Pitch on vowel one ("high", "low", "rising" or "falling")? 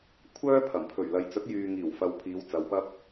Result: high